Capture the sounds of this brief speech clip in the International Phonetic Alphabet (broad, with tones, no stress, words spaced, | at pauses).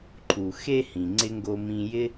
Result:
ǃʰu˩xe˦hĩ˩ ŋ͡ǀɪ˥ŋɡo˦mĩ˦ jɪ˥